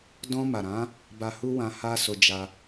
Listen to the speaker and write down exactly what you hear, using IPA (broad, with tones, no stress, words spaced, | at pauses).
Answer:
dɔ̃˧ma˨ɾã˨˦ | ba˧hu˦wã˧ ha˦so˧ d͡ʒa˧